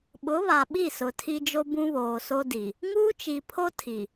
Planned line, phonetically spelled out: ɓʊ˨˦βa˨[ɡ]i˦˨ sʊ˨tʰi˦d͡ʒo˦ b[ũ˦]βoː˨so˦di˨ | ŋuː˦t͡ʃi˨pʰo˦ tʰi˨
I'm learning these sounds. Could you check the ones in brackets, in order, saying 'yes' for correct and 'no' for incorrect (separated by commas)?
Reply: no, yes